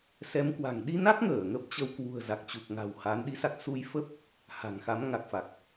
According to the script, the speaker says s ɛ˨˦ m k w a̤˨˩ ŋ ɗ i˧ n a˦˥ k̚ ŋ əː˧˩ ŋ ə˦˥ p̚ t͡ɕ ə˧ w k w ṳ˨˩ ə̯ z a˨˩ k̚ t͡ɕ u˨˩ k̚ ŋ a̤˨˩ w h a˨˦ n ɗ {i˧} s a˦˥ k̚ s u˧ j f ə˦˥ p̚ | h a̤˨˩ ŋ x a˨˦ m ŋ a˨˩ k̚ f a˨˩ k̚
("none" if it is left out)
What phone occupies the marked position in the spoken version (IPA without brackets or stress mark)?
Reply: i˧